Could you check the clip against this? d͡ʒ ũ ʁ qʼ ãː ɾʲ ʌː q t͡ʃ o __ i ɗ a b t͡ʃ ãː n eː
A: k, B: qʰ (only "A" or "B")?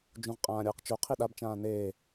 B